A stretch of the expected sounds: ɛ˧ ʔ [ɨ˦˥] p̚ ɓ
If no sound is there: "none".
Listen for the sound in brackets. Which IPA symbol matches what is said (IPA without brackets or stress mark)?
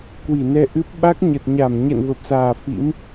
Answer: ɨ˦˥